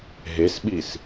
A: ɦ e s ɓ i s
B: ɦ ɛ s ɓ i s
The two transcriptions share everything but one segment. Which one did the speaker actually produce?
A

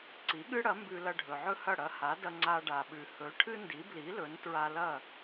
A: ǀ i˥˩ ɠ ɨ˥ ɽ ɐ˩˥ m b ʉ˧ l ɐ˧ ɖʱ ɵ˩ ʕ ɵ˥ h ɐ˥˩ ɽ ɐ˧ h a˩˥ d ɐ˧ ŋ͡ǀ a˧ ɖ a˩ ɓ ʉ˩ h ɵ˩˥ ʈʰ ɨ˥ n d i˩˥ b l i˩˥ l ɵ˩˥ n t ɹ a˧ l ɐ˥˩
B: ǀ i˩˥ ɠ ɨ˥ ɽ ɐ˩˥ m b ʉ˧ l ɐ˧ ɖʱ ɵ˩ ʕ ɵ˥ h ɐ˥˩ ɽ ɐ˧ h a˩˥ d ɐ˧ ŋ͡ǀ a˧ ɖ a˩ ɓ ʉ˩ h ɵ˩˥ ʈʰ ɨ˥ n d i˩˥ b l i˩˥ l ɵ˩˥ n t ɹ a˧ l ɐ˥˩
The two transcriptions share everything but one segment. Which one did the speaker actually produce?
B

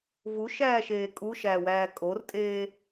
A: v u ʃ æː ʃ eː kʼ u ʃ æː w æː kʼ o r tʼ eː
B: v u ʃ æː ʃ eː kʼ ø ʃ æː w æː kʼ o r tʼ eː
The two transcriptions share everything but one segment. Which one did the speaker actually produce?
A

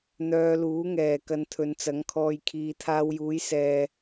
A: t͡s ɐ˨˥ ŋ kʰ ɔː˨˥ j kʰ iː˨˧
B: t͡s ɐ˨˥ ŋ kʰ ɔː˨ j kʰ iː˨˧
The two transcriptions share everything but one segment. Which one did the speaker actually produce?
B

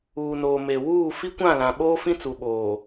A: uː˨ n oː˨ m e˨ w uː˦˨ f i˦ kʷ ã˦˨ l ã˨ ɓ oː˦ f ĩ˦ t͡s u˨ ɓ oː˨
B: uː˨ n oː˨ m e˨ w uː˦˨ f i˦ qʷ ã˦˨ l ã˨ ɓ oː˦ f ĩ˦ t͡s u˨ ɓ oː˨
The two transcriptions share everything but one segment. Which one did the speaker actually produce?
A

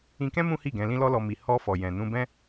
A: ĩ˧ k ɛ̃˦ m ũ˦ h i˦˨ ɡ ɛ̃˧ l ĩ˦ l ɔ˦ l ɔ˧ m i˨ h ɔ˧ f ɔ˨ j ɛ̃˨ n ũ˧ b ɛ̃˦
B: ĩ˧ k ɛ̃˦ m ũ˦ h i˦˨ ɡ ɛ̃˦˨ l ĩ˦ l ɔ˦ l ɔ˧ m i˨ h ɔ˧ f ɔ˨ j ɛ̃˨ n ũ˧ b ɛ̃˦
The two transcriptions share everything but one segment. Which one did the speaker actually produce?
A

